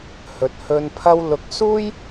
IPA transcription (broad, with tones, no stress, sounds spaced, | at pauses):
h ɵ˨ t̚ h ɵ˨ n pʰ ɐ˧ w l ʊ˨ k̚ s uː˥ j